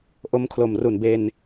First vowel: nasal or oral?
oral